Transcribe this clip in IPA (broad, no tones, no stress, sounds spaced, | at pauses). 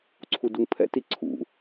ǀʰ u d u ŋ pʰ ɛ̰ t i ǀʰ ṵ